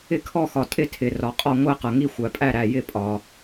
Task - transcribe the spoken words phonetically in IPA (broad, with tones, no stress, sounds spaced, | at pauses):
ɪ˧˩ kʰ ɔ˧˩ x ɒ˩ tʼ ɪ˧˩ tʰ ɪ˩ r ɒ˩ qʼ ɒ˧˩ ŋʷ æ˧˩ q ɤ˩ ŋ i˧˩ xʷ æ˩ pʼ æ˧˩ ɾ æ˧˩ j ɪ˧˩ pʼ ɒ˩